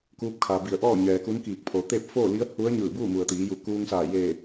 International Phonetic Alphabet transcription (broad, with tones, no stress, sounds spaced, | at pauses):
k uː˧˥ p̚ kʰ a˩ b i˧˩ ə̯ ʔ ɔː˥˨ ɲ ɛː˩ k u˧˥ n k iː˧˩ k̚ pʰ oː˩˧ t̪ e˥˨ p̚ f oː˥˨ l i˧˥ ə̯ h u˧˥ ə̯ ɲ ɯː˧˩ b uː˥˨ m u˩ ə̯ t̪ iː˩˧ j u˧˩ k uː˧ ŋ s aː˧˩ j eː˧˩